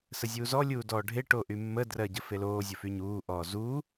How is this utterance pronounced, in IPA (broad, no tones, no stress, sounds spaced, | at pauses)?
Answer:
s ə zʲ uː z ɔ lʲ uː d ɔː ɖʱ e ʈ o ʔ y mː ə d r ɜ ɟ ə f e l oː zʲ ʊ f y ɲ uː ʔ ɔː z u